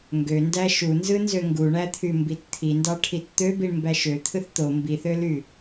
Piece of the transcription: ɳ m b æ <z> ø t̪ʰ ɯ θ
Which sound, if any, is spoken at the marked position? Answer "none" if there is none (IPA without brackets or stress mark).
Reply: ʃ